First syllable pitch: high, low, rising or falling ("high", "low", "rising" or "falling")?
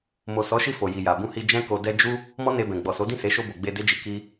low